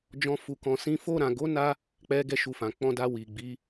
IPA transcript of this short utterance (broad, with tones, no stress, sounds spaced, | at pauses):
d͡ʒ ɔ̃˦ f u˧ k ɔ̃˧ s ĩ˦ f o˧ ɾ ã˨ ɡ o˨˦ n a˧ | k͡p ɛ˦ ɡ ɛ˦ ʃ u˧ f ã˨ k͡p ɔ̃˧ d a˧ w i˨ ɡ͡b i˨˦